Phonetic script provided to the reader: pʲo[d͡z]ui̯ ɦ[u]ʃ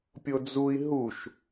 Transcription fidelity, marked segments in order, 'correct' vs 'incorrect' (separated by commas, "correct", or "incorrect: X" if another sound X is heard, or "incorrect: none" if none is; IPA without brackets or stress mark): correct, correct